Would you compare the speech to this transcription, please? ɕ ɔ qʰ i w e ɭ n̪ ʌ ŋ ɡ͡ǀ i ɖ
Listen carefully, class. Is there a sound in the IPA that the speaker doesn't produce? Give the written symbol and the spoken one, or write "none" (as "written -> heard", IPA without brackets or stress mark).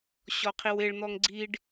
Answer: ʌ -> ɔ